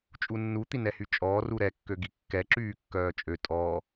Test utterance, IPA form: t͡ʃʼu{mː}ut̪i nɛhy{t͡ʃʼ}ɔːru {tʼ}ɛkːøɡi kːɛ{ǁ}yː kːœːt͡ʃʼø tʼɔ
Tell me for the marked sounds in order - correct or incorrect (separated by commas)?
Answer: incorrect, correct, incorrect, correct